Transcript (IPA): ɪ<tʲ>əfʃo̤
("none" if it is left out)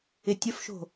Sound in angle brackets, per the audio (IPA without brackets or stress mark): tʲ